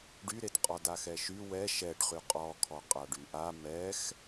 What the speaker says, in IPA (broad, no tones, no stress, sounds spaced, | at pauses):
ɖ y ɾ e t qʼ ɔ d a x ɛ ʃ y w ɛ ʃ ɛ ɖ χ y qʼ ɔ kʰ ɔ qʼ a ɖ y ʔ a m ɛ x